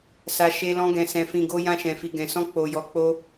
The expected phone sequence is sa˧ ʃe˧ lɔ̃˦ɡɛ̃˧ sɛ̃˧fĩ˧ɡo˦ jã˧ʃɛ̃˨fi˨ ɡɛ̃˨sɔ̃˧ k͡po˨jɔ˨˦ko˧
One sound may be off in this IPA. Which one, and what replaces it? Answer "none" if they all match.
k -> k͡p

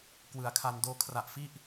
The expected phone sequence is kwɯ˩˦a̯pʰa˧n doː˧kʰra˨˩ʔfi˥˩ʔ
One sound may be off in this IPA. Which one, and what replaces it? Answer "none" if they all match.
pʰ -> kʰ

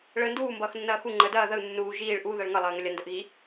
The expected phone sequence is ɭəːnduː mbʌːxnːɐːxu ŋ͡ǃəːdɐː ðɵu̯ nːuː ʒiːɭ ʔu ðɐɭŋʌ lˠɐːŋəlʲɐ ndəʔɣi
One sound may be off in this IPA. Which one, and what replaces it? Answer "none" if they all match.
ɵ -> ə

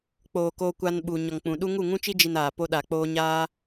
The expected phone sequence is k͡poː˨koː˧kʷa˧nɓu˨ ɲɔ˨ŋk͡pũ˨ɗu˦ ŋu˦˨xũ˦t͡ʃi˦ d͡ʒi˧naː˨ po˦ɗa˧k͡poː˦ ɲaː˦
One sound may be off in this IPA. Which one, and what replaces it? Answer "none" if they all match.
x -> ŋ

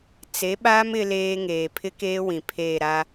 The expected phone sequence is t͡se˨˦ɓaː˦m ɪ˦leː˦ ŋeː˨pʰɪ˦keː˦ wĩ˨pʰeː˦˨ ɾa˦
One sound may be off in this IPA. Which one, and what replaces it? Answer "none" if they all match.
none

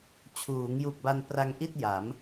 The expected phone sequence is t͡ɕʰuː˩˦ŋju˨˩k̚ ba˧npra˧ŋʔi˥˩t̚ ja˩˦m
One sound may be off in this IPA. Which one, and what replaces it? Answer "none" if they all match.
none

